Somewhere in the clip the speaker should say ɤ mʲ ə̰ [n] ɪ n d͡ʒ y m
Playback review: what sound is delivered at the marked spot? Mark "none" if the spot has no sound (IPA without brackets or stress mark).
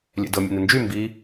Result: n